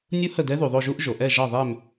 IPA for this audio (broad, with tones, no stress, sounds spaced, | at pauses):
nʲ u˦˥ h ə˦˨ d ɛ˦˥ ð u˩ ðˤ o˦˨ ʒ u˦˥ ʔ ʒ o˩ ʔ ɛ˦˨ ʒ ɑ˦˨ ðˤ ɛ˦˨ m